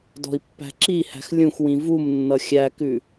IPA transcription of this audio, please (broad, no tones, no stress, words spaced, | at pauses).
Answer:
dɔ̤i̯pːæ̤ǁihæ̤x lʲũxwĩ vumnːʌ xʲækʉ